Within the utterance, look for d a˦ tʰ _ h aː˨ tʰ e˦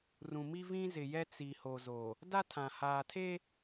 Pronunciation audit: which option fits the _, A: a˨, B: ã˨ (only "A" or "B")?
B